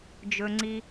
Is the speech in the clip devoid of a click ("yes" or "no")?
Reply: no